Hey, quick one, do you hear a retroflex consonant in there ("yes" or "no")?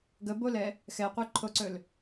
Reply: no